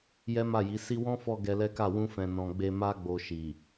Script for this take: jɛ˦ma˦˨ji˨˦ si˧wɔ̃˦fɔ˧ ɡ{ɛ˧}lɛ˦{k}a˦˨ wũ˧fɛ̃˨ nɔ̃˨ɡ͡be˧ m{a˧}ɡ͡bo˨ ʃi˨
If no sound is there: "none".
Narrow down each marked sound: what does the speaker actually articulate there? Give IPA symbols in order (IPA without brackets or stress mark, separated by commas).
ɛ˧, k, a˧